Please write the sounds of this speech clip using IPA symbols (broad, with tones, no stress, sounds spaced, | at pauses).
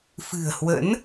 f ɨ̤˨˩ ə̯ h w ə̰˧˥ n